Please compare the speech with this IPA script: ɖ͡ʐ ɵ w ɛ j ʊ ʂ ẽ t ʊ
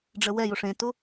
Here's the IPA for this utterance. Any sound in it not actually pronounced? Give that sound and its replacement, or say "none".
ɵ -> ə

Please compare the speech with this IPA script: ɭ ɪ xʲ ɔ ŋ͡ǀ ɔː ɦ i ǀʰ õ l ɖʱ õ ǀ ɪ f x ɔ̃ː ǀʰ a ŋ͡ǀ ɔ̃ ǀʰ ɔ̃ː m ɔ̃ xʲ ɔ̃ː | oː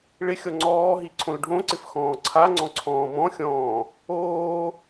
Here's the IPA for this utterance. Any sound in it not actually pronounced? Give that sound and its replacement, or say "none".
none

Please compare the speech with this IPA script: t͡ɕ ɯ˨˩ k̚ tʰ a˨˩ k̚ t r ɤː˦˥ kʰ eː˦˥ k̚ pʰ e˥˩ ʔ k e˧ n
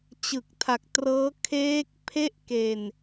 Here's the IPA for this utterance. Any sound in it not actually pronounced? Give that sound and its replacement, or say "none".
none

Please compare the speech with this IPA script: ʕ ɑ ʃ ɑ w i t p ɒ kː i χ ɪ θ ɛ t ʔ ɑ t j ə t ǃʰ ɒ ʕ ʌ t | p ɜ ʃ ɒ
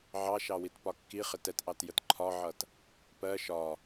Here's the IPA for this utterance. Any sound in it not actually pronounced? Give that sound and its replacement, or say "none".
θ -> t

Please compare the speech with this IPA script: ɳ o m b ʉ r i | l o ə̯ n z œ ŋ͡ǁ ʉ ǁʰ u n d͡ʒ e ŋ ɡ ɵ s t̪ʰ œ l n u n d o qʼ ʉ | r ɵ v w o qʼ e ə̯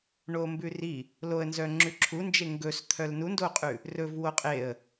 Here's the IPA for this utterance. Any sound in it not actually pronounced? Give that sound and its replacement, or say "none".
none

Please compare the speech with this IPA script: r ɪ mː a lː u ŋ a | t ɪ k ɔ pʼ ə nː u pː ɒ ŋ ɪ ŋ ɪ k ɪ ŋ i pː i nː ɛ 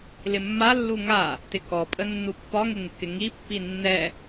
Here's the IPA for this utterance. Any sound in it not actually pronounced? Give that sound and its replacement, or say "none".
r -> l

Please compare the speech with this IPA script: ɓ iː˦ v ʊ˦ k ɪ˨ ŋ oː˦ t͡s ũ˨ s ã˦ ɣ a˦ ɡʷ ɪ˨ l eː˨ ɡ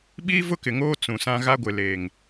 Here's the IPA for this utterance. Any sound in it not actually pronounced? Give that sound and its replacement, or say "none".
ɡ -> ŋ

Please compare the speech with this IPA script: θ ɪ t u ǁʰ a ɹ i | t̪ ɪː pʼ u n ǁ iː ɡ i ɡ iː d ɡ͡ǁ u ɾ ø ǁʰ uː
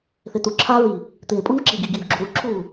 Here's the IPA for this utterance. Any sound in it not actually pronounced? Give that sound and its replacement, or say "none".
ø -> u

